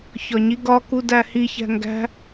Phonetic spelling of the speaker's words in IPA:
çɒɲiɡɒ kudæhi çæ̤ŋɡæ̤

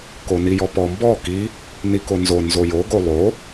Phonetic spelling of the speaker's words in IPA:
konijɔpɔ mbɔ ki | nikonzo nzojo ɡolˠo

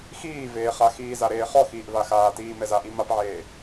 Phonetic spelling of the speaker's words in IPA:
xiːveːχa xiːzaɾeːχɔ xiːʔvaxaːtiː mɛzaʔi mapʕeː

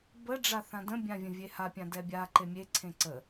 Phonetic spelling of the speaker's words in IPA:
bə ɖ͡ʐaθãdə̃ bʲãvʲə̃vʲeha pʲãdɛbʲa ǃemʲe ǀʰẽǀə

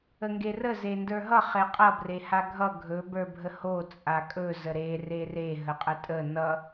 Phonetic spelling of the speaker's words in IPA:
əŋɡerə zendə˞ɦʌ χeqʼʌ brehaɡʱʌ ɡʱɵ bə˞bʱəho t͡sʼakʼɵ zəɾe rere ɦəqʼətʼə nʌ

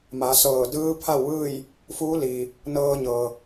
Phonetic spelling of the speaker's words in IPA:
ma˩˧sɤː˧˩ dɯː˧˥pʰa˥˨wʋɯː˥˨j | fuː˧˥liː˩ | nɤː˧ɲɤː˩

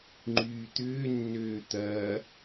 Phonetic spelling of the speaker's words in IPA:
ŋ͡ǃyːt̪ʏːnːøː t̪ɐː

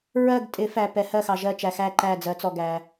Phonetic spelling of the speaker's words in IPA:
ɹɜ˦˨ɡtʼɪ˨˩˦fæ˨ pɛ˨˩˦hɜ˦˨xɑ˨ ʒɜ˦˨t͡ʃæ˨ xæ˦˨ǃæ˦˨d͡zɜ˨˩˦t͡sɔ˨ ɡæ˨

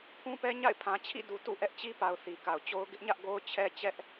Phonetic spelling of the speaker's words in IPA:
pʰũ˦pɛ˦ ɲa̰˦˨ɪ̯pʰã˨t͡ɕʰḭ˦˨ du˨tṵ˦˨ʔɛ˦ʔ t͡ɕi˦pa˨ʊ̯ θi˨ka˨ʊ̯t͡ɕo˦ʊ̯ ɡɪ˦ʔɲä˦ʔ ɡo˦ʊ̯t͡ɕʰɛ˦ t͡ɕɛ˦ʔ

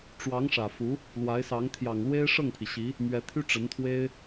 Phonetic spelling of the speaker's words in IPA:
ʈ͡ʂwɑ˧˥ŋʂä˨˩fu˧˥ | lwa˧˥ɪ̯sɑ˧˥ŋ t̪ʰjɑ˨˩ŋlwe˥ɪ̯ ʂɤ˥˩ŋpʰi˩ɕi˧˥ | mɥɛ˧˥t̪ʰy˥ ʈ͡ʂə˧˥nt̪ʰwe˥ɪ̯

